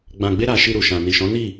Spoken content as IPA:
ɡ͡b ã˧ ɡ͡b e˦ ɾ a˧ ʃ i˧ ɾ u˨ ʃ ã˨ n i˨ ʃ ɔ̃˨˦ n i˦˨

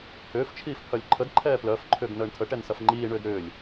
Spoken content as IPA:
h ʏː f t͡ʃʰ iː f pʰ œ lʲ ǃʰ ə d ǃʰ ɛː p l œ f ǃʰ ʏː ɡ n əː ɳ tʰ ə ʈ ɛ n s ɐ f ŋ͡ǃ iː ɳ ʏː d ɾ ʏː lʲ

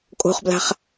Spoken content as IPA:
kʼ o̤ χ b l a̤ χ

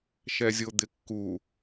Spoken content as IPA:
ʃ ɛ zʲ o d̪ ɪ kː u

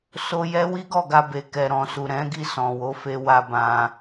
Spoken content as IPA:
s o˧ j ɛ˦ w i˦ ɡ ɔ˦˨ ɡ a˧ b e˨ k ɛ˨ ɾ ɔ̃˨ s u˨ ɾ ɛ̃˨˦ ɡ i˦˨ s ɔ̃˨ w o˨˦ f e˧ w a˧ b ã˧

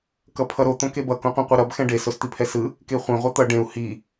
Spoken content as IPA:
k ʌ pʰ ʌ ɾ o t̪ õ k e b ʌ k õ qʷ ɛ̃ qʷ i ɾ ʌ b x ɛ̃ ɖ e s o s t̪ i pʰ ɛ s ɯ | k e χʷ ẽ ʁʷ ɛ t̪ ʌ ɖ ẽ u̯ h i

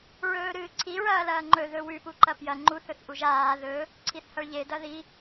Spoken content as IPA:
ɹ ɵː ɾ ɨː ǀʰ i ɹ ɐː l ɐː ŋ͡ǃ ɵ ð ɵ w ʉ p u ǃ ɐ p j ɐ ŋ͡ǃ u θ ɵ θ ʔ u ʒ aː ð ɵ | ǀʰ i θ h ɐ ɭ ʎ e d ɐ ð i

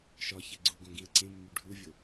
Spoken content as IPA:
ʃ ɒ ç e ɡ͡ǀ u ɡ õ ɡ ĩ ə̯ ǀ ẽ mː u ɖʱ u vʲ o

